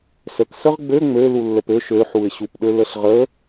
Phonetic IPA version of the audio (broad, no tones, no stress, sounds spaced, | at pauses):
s ə k s ə ʁ ɡ͡b ø ŋ͡m ø l u lː ə p ø ʃ ø ħ u ɪ̯ ɕ u p ɗ ø l ə ɬ ʁ ə